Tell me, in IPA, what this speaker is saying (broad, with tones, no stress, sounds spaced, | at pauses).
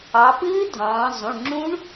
ɑ˩˧ p ɨː˦˥ dʱ ɑ̃ː˩˧ zˤ ũ˩˧˩ ɳ ŋ͡ǁ ũ˦˥ ɳ